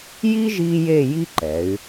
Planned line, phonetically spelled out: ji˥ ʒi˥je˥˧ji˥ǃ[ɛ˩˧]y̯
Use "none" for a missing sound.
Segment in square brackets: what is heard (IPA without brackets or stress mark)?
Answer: ɛ˩˧